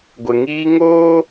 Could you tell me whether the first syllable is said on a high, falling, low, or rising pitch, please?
low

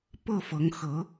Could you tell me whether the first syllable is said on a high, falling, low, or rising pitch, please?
falling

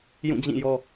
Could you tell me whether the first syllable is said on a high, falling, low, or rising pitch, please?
falling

